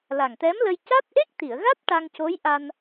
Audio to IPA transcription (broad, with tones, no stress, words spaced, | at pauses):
la˨˩ŋt̪ɛ˧˥mlə˧j ca˦˥t̚ʔe˦˥k̚t̪i˨˩˨ə̯ɣa˦˥t̚ ʈa˧ŋco˧˥jʔa˧n